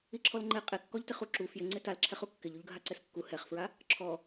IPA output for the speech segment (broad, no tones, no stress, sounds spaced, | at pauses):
i ǁʰ ɔ l ŋ͡ǃ e qʼ e kː ɔ ʎ t ɪ χ u ǁ u f j ɪ ŋ͡ǀ ɪ t a l ǁʰ ɛ χ u kː ɪ ʎ u ʎ ɡʱ a ǀ ɛ s kː u h ɛ χ f ɹ a | ǁʰ ɔ